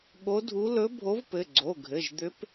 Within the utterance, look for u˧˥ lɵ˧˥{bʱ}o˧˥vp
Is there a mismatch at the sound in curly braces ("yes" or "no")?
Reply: no